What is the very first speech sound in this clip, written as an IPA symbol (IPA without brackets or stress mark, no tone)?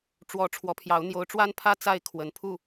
ʈ͡ʂ